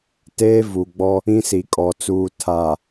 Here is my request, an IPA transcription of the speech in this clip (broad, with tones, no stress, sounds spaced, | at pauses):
t eː˦ v u˨ ɡ͡b ɔ˦ | ĩ˦ s i˨ kʼ ɔ˨ t͡s uː˨ tʰ aː˨